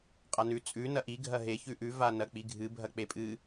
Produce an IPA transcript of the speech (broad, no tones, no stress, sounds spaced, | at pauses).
qʼ a n ʉ t͡sʼ ʉ n ɐ ʔ i ɡʱ ɐ ɦ e ç ʉ ʔ ʉ v a n ɐ k͡p i ɡʱ ɨ bʱ ɐ k͡p e pʼ ɨ